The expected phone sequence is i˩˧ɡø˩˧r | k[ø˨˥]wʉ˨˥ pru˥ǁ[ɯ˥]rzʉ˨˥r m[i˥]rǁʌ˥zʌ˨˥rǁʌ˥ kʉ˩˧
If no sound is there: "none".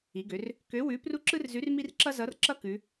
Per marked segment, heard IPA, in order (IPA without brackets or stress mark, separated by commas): ø˨˥, ɯ˥, i˥